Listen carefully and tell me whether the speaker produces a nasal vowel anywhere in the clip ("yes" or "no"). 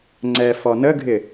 no